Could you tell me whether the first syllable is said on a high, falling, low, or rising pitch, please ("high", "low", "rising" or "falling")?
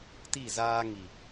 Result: falling